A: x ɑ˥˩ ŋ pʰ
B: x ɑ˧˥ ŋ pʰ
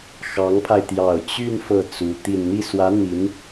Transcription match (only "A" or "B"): B